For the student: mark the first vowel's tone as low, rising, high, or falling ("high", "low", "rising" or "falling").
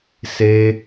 high